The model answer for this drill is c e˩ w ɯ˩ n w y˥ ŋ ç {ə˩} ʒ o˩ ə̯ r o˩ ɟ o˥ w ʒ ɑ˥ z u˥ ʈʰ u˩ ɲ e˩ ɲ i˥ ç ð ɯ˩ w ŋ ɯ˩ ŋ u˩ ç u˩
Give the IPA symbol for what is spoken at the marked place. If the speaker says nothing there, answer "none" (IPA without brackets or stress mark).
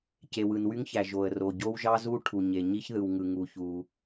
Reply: æ˩